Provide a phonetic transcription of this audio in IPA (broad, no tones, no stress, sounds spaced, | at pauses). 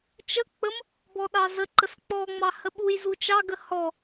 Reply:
t͡ʃ ə k͡p ə m | b ɔ ɗ ɑ z ə ǃ ə s k͡p ɔ ŋ͡m ɑ h ə ɓ u j z u t͡ʃ ɑ ɡ ə h ɔ